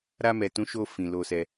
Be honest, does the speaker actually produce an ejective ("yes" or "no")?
no